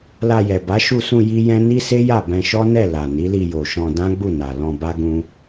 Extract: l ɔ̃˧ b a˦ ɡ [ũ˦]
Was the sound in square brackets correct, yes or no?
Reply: yes